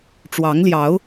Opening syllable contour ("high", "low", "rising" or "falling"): rising